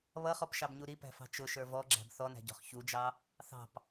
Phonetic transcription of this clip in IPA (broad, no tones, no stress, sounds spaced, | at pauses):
β ʌ χ ɔ p ʃ ɑ b ɲ u ɾ i p æ̤ f ɑ̤ t͡ʃ ʊ ʃ ə˞ v ɔ ɡ͡ǁ æ̤ b θ ɔ n æ̤ ɟ ɔ̤ χ ç u d͡ʒ ɑ | θ ɑ̤ p